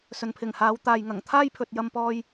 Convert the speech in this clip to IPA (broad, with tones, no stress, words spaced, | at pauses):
sɵ˨npʰɪ˨˩ŋhaː˨˧w t̪aː˨jŋɐ˨˩ŋ t̪ʰaː˥jpʰɵ˨t̚ jɐ˧mpɔː˧j